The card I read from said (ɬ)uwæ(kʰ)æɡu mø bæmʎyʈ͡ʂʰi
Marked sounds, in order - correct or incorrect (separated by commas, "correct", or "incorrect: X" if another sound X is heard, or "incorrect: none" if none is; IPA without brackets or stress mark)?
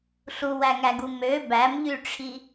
correct, incorrect: ŋ